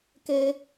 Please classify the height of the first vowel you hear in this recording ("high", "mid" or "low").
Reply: mid